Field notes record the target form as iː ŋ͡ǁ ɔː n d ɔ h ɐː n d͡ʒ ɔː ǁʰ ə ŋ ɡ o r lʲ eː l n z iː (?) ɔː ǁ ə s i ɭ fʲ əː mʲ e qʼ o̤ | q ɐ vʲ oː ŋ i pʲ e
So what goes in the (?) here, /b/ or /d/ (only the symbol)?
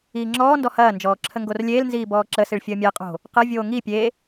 b